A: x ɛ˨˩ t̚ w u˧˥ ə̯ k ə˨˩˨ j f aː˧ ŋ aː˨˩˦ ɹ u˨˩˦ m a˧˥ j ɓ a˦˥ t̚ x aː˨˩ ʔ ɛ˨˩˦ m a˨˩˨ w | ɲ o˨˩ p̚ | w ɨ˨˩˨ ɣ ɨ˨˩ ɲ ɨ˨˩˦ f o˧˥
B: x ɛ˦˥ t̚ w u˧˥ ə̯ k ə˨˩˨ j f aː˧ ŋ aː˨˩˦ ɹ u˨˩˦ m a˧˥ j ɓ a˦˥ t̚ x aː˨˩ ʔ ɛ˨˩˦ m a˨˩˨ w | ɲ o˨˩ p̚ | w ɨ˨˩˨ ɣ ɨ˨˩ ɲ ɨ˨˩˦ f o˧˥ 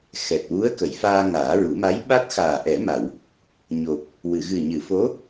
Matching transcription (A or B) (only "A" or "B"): A